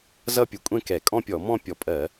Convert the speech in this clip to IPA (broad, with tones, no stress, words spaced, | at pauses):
zʌ˥˧pʲʊ˧˩˧kʷʼɛ̃˥˧ kɛ˧˩˧ kʼɔ̃˥˧pʲɔ˧˩˧mɔ̃˥˧ pʲɔ˧˩˧pʼɜ˧˩˧